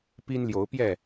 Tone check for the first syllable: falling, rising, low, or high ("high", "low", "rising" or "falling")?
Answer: high